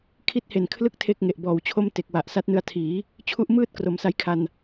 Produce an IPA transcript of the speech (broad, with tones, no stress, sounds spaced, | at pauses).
kʰ i˦˥ t̚ h e˨˩ n kʰ l ɯ˦˥ k̚ tʰ e˥˩ k̚ ŋ e˨˩ ʔ b ɔː˨˩ w t͡ɕʰ o˥˩ m t e˨˩ k̚ w a˨˩ ʔ s a˦˥ t̚ n ɯ˧ a̯ tʰ iː˩˦ | t͡ɕʰ u˦˥ ʔ m ɯː˥˩ t̚ k r o˩˦ m s a˦˥ j kʰ a˧ n